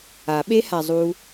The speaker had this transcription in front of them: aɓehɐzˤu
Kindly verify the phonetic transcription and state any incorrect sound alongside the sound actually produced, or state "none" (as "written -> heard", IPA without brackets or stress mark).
ɐ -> a